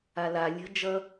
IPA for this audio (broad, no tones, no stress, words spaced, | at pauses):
ala lʲə̤ d͡ʒʌ